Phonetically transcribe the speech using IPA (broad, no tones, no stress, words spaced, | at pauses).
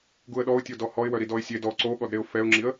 ɡuə̯ɗɔʊ̯tʲo dɔhɔɪ̯wœ ɾidɔɪ̯sʲed ɔ ǀoɠɔdɾeʊ̯ fɛʊ̯ŋ͡ǁiə̯